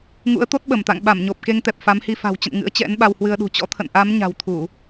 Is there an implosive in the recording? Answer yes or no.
yes